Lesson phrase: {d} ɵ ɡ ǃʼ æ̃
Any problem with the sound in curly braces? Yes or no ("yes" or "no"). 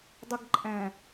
yes